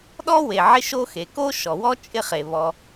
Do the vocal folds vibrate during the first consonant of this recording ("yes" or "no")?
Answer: yes